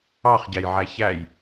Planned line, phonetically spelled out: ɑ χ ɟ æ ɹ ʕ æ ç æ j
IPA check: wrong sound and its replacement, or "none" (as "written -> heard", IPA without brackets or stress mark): ɹ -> j